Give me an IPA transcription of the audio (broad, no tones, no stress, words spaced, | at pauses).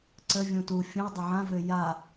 ǀə vʲũtu fʲũo̯ dˤʏʕãvø ja